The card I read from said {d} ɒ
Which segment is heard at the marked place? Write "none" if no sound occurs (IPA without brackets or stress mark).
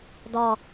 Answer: d